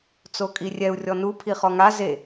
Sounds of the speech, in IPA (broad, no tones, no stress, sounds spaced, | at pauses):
t͡s o kʼ i rʲ ɛ u̯ rʲ ɔ n u pʰ i χ ɔ ŋ a z e